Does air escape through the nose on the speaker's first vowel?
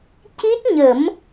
no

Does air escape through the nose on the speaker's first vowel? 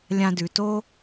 yes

